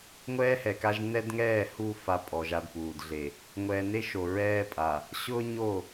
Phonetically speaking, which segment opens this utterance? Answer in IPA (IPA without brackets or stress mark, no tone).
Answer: ŋʷ